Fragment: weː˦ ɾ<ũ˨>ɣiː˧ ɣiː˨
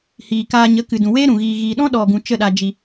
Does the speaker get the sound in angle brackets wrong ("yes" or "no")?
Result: no